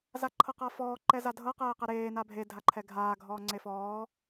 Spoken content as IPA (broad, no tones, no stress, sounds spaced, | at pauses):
z a ǃʰ ɤ q a f ɔː ǃ ɛ z a dʱ ɤ q ɛː q ɛ ɾ eː n a bʱ e dʱ a ǃʰ ɛ ɡʱ aː ɡʱ ɔː ŋ͡ǀ e f ɔː